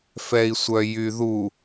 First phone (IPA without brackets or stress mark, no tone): f